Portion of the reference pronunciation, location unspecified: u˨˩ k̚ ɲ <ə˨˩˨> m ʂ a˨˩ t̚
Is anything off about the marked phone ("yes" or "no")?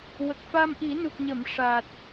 no